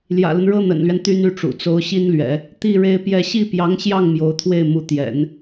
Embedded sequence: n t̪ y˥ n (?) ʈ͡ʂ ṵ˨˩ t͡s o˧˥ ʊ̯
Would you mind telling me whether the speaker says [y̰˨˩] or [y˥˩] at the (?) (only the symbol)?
y˥˩